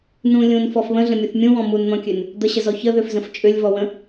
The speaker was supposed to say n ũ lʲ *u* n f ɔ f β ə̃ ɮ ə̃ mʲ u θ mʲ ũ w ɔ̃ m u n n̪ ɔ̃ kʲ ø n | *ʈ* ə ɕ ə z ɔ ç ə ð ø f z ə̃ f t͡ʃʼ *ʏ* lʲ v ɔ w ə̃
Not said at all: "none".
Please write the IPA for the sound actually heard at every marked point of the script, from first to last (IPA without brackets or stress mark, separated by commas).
ũ, d̪, ʏ